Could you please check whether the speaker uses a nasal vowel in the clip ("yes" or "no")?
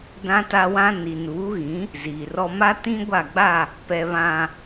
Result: yes